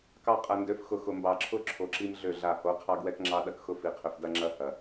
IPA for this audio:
k ɑ˦ qʼ ɐ˨ n d ø˨˦ f x ʊ˨ x ʊ˨ m b ɑ˨ ǁʰ ʊ˦ ǁʰ o˨ ǁ i˦ m ɮ ø˦˨ ɮ a˦˨ h o˨˦ qʰ ɑ˦ ɡ w ɛ˦ k ŋ͡ǁ ɑ˦ ɗ ɐ˦ k x ʊ˦ f i˨ qʰ ø˨ f d ɐ˦ ŋ͡ǁ ɐ˦ h ɐ˨

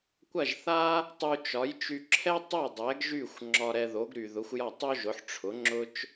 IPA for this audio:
kʷ ɐ˥˩ ʒ θ a˥ | tˤ u˧ t͡ʃ ɒ˩˥ j t͡ʃ y˧ ǁʰ ɛ˥ tˤ o˥˩ dˤ ɛ˩˥ ɡ ʒ y˥˩ xʷ ŋ͡ǁ ɒ˧ ɾ ɛ˧ ð o˩˥ ɡ ɾ y˩ ð ʊ˩˥ xʷ j ɒ˥˩ tˤ o˥ ʒ ʊ˩˥ ħ ʈ͡ʂʰ ʊ˩˥ ŋ͡ǁ ʊ˥ t͡ʃ

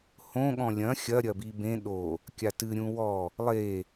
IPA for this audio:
h õ ɠ ɔ̃ lʲ ɐ̃ xʲ ɐ ɾʲ ɐ b i b ẽ ɗ o | kʲ a t ɨ ɾʲ ũ w ɔ | lˠ e

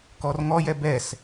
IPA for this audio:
k ɔ r ŋ ɔ j ɛ b ɛ s

